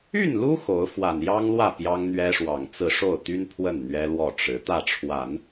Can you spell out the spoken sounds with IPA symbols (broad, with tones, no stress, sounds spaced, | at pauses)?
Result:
y˥˩ n l u˥ x o˧˥ ʊ̯ f w a˨˩ n j ɑ˥ ŋ l w ä˥˩ p j ɑ˥ ŋ n̪ ɥ ɛ˥ ʂ w ɑ˨˩ ŋ t͡s ɹ̩˥˧ ʂ o˥˩ ʊ̯ t̪ y˥ n pʰ w ə˥˩ n n̪ ɥ ɛ˥ l w ɔ˥˩ ʈ͡ʂ ɻ̩˧˥ t̪ ä˥˩ ʈ͡ʂʰ w a˨˩˦ n